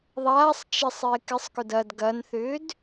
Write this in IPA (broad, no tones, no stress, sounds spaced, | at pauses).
ðˤ aː sˤ t͡ʃ ɪ sˤ ɪː k ɪ sˤ k ʊ d ɐ d ɡ ɐ n θ ʏː d